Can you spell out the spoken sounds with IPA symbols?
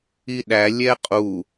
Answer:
i ɗ æ lʲ ɛ qʼ u

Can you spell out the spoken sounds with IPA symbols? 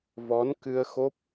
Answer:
v ɔ˨˦ n k ɨ˧ ə̯ x o˦˥ p̚

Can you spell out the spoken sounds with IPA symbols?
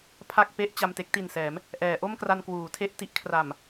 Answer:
pʰ a˥˩ k̚ p e˥˩ ʔ t͡ɕ a˧ m t e˥˩ k̚ t i˨˩ n s ɛː˩˦ m | ʔ ɛː˩˦ ʔ o˥˩ m k r a˧ n k w uː˩˦ tʰ e˥˩ ʔ t i˦˥ ʔ kʰ r a˨˩ m

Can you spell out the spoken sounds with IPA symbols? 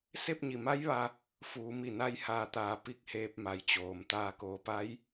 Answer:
s e˥˨ p̚ ɲ i˧˩ m a˧˥ j ʋ a˧ | f uː˩˧ m i˧˩ n a˧ j h aː˧˩ t̪ aː˩˧ p i˧ k̚ h eː˧ p̚ m a˩ j t͡ɕ oː˩ m t̪ aː˧˩ k oː˩˧ p a˧˥ j

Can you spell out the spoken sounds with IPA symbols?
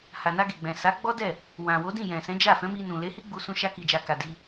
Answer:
h a˨ n a˧ ɡ e˨ ɡ͡b ɛ̃˨ s a˨˦ ɡ͡b ɔ˦ d ɛ˦˨ | w ã˨ w o˨˦ d ĩ˦˨ j ɛ̃˨ s ɛ̃˨˦ d͡ʒ a˦˨ f ɛ̃˨˦ m i˧ n ũ˨ l e˨˦ h i˦ ɡ͡b u˧ s ũ˧ ʃ a˧ k i˨ d͡ʒ a˨ k a˨ d i˧

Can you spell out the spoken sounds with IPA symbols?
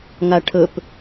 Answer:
ŋ a ʈʰ ɵ p

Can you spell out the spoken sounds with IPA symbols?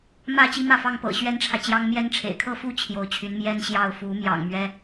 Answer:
m ä˥˩ t͡ɕ i˥ m ä˥˩ f ɑ˥ ŋ p ɤ̰˨˩ ɕ ɥ ɛ˥ n ʈ͡ʂʰ ä˨ t͡ɕ j ɑ˥ ŋ m j ɛ˥ n ʈ͡ʂʰ ḛ˨˩ ɪ̯ kʰ ɤ˥˧ f u˥˩ t͡ɕʰ j o˧˥ ʊ̯ t͡ɕʰ y˧˥ n m j ɛ˥ n ɕ j ɑ˥˩ ʊ̯ f u˧˥ m j ɑ̰˨˩ ŋ m ɥ ɛ˥

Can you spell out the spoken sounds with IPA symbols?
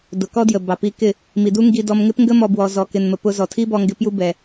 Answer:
d ʊ˨ k ɔ˦ d j ə˨ b ɑ˨ p i˧ k ɪ˦˨ | m i˨ d u˦ ŋ ɡ i˧ d ɔ˧ m ŋ ɪ˦ p ŋ ɡ ə˦ m ɔ˧ b w ɔ˨ z ɔ˨ k ɪ˨ n m ə˨ p ʊ˧ z ɔ˨ tʰ i˦ b ɔ˧ ŋ ɡ ɪ˧ p j u˧ b ɛ˨

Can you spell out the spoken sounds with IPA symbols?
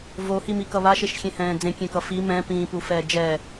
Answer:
v o h i m i k ʌ β a ʃ e ʃ xʲ ẽ h ɛ̃ː d͡z ẽ kʲ ẽ k ʌ f i m ɛ̃ p ĩː p u f ɛː d͡ʒ ɛː

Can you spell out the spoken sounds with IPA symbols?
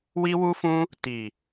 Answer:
w i˦ w u˦ f ũ˦ | t i˨

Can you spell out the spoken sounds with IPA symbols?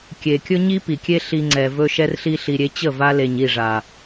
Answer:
kʲ e˨ kʲ ɵ˦ ɲ i˦ p i˨ kʲ e˦ ɬ i˧ ŋ͡ǀ ɛ˨ v ɵ˦ ʃ ɛ˦ r ɬ i˦ ɬ i˨ ɾʲ e˧ t͡ɕ ə˦˨ v a˧ l e˨ ɲ i˦˨ ʐ a˨

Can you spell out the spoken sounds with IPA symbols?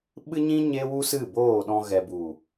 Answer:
ɓ ɨ˦ ɲ ĩ˦ ɲ e˦ w u˦ s ɨ˦˨ b oː˦˨ ɗ ɔ̃˧ ɣ ɛ˨ b u˨

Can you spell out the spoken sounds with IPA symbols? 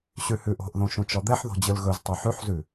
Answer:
ɕ ʉ h ʉ ʔ o̤ ʔ ð õ ʃ ũ t͡ʃ ɔ d̪ ɛ ħ ð o̤ d͡ʑ ɯ l ɣ ɵ z tˤ o ħ ʉ ħ z ʉ

